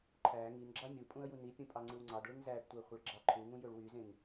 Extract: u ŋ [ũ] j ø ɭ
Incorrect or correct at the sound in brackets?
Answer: correct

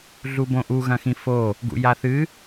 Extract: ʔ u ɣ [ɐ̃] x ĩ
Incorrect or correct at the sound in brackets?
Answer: correct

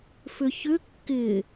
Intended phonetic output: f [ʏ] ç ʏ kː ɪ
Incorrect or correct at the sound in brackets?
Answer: correct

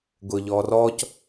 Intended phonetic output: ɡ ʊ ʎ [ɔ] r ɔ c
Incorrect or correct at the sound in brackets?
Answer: correct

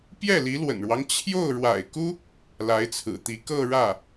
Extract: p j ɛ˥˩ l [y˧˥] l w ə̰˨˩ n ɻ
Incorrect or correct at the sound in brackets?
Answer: incorrect: i˧˥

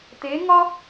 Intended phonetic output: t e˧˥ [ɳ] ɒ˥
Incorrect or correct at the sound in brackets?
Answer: incorrect: ŋ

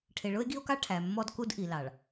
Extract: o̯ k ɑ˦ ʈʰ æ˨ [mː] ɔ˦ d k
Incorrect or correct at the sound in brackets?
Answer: correct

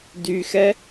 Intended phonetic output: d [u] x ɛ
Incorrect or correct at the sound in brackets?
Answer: incorrect: y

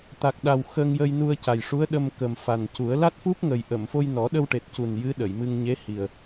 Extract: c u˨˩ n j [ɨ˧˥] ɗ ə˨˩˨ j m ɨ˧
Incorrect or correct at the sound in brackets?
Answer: correct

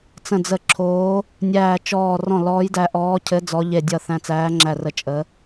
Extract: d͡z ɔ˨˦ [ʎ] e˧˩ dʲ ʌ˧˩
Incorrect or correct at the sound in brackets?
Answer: correct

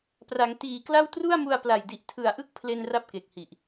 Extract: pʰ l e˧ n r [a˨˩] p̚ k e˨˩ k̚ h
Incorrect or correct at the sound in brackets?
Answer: incorrect: a˦˥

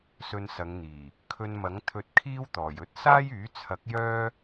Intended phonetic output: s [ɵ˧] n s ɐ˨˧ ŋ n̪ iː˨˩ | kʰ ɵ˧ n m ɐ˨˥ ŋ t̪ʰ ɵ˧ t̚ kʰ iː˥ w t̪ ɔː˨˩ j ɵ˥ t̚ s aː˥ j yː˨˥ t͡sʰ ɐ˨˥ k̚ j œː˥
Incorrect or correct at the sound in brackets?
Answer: correct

